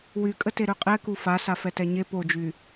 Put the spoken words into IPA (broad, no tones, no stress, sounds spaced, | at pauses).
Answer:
w y kʼ ə t e ɾ ø qʼ ɛ k u f a s a f ɛ t ɛ ɲ e p o d͡ʒ y